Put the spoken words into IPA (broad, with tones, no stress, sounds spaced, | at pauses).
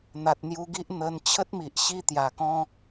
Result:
n̪ a˨ t̚ n̪ j u˧ ɡ i˦ ʔ n̪ ə˧ n t͡ɕʰ ə˦ t̚ m i˨ ʔ ɕ i˦ t̪ j a˨˩ k ɔ̃˦